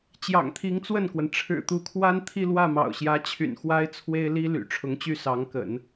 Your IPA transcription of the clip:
t͡ɕ j ɑ̰˨˩ ŋ t̪ʰ i˧˥ ŋ t͡s w ə˥˩ n k w ə˩ n ʈ͡ʂʰ ɻ̩˨˩ t̪ u˧˥ kʰ w a˥ n t̪ʰ i˥˧ l w ä˥˩ m ɑ̰˨˩ ʊ̯ ɕ j ä˧˥ t͡ɕʰ y̰˨˩ n x w a˥ ɪ̯ t͡sʰ w e˥ ɪ̯ l i˥ l y̰˨˩ ʈ͡ʂʰ ʊ˧˥ ŋ t͡ɕ y˥˩ s ɑ˧˥ ŋ k ə̰˨˩˦ n

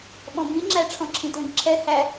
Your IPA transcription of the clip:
ɓ ɔ̃ b ĩ ŋ͡ǁ æ ʈ͡ʂʰ ɔ̃ ǁʰ ĩ t l ə̃ ɡ ǁʰ ɛ h æ

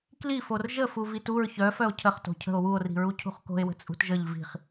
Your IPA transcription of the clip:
k l i f o r ʒ ə f u v i t u ɹ ç œ f œ o̯ cʰ ə χ t o̤ cʰ ə̤ o̯ w u o̯ r i̤ ɹ u cʰ ṳ χ k o̤ e̯ w ə̤ t͡sʼ ṳ t ʒ ə ʎ v i̤ χ

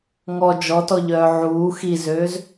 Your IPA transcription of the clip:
ŋ ɔ d͡ʒ ɔ t ɔ ʎ œː ʕ uː x i z øː z

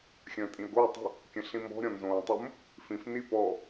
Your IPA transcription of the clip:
xʲ ə̃ː tʼ ĩ ə̯ ɡ o ə̯ tˤ ə̤ | kʲ ə̃ ɬ ĩ m ɔ̤ ɾʲ ɔ̃ n z õː tˤ ʊ m | f ĩ f n i p ɔ

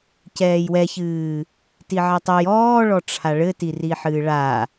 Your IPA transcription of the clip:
c ɛː j w ɛ ç ɨː | t i ʕ ɛ tˤ ɘ j ɔː ɭ ɔ ʈ͡ʂʰ a ɭ ɘ t i r i ħ ɨː ɭ a

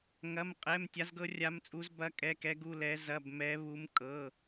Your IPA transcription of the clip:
ŋ ɐ˧˥˧ m qʼ ɛ˧˥˧ m tʲ a˦˥ z ɡ ɤ˦˥ rʲ a˦˥ m t͡sʼ u˦˥ z b ɐ˦˥ kʼ ɛ˧˥˧ k ɛ˦˥ ɡ u˧˥˧ l ɛ˦˥ z ɐ˧˥˧ b m ɛ˦˥ β u˦˥ m kʼ ɤ˧˥˧

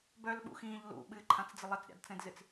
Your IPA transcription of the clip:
b œ l ɓ ṵ x ĩː ʎ l ṵ ɓ ɨ ǃʰ ã t͡s d͡z ɪ lˠ ɪ t͡s ɾʲ a̰ d t͡s ɛ̃ d z ɨ t͡s

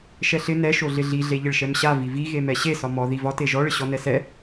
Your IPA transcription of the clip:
ʃ ɛ ɬ ɪ n ɛ ʃ o ɮ ɪ ɮ i ɮ e ʎ ɪ ɭ ʃ ɛ m ɕ a v i v i ɣ e m ɛ ɕ e s ɒ m ɔ ð i v ɒ t e ʒ ɔ ɭ ɪ ɕ ɔ n ɛ s ɛ

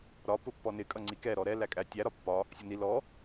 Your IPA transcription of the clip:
ɾ ɒ p ʊ pː ɔ n ɪ kʼ ʌ ŋ͡ǀ i k ɛ ɾ ɔ ɾ ɛ l æ kʼ æ tʲ æ ɾ ɒ pː ɒ | sʲ ʊ n i l ɔ

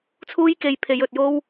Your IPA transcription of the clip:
t͡sʰ uː˥ j k e˧ j pʰ e˨˧ j ɵ˨ t̚ j o˥ w

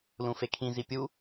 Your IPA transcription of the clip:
l ũ f e kʰ ĩ z i pʲ u

